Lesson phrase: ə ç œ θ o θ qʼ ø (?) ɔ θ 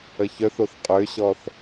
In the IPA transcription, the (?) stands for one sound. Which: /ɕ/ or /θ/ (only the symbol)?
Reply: ɕ